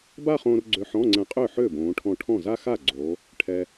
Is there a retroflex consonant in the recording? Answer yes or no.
yes